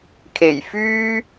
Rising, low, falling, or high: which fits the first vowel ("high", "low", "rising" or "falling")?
low